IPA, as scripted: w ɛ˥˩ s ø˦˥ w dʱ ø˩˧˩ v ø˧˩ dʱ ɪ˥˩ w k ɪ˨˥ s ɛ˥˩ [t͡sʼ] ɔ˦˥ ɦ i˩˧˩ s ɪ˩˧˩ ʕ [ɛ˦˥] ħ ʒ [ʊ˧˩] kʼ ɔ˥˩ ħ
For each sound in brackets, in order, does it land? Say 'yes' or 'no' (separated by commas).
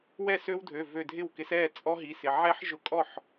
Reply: yes, yes, yes